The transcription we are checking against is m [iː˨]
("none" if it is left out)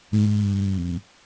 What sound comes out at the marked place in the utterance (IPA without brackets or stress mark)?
iː˨